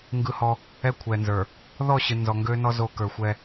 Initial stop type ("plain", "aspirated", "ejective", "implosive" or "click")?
plain